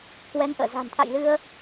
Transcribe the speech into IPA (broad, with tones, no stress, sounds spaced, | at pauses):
k w ɛ˨˦ ŋ ʔ ə̰ː˧˨ z a̤˨˩ n t̪ʰ a̰˧˨ j l ɨ˧ ə̯